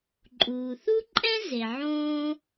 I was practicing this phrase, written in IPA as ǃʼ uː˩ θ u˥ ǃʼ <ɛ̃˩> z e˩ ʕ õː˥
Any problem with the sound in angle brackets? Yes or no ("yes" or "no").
yes